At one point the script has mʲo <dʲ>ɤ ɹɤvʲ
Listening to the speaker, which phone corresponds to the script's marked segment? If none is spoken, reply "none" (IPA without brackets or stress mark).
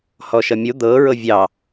d̪